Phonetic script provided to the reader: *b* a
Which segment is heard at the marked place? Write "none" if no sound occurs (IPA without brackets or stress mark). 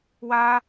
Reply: w